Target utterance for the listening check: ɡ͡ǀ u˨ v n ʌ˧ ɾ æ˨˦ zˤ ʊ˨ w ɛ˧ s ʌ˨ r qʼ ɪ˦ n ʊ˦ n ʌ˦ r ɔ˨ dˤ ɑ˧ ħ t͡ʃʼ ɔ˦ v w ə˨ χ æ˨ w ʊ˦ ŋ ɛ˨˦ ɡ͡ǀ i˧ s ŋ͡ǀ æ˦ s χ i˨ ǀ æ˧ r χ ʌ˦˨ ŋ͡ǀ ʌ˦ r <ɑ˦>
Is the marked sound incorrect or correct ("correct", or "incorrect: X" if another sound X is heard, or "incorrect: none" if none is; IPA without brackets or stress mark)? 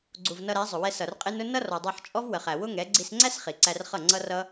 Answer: incorrect: ʌ˦